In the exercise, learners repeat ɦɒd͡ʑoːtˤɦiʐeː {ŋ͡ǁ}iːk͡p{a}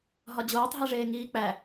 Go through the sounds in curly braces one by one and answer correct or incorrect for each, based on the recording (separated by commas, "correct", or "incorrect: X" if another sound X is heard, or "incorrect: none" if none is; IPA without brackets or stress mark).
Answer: incorrect: ŋ, incorrect: æ